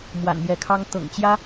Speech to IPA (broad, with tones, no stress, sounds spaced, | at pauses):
m w a̰˨˩ n m j ɛ˧˥ kʰ ɑ˥ ŋ t̪ ɤ̰˨˩ ŋ t͡ɕ j ä˥